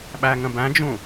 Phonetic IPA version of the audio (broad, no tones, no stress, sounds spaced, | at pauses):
ɓ æ ŋ ə̃ b æ̃ d͡ʒ ũ